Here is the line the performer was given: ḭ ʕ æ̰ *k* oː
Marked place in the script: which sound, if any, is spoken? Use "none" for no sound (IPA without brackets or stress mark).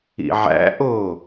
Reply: ʔ